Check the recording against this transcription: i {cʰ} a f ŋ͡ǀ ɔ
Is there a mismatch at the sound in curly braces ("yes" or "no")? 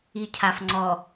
no